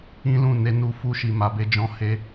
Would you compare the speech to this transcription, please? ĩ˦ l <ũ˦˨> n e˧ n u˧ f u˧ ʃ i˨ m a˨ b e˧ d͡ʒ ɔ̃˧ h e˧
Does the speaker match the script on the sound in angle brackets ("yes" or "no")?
yes